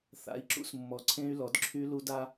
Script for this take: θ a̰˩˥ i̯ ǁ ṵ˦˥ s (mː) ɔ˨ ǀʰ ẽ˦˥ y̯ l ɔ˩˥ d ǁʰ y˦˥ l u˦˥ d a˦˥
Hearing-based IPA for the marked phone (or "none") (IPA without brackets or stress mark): mː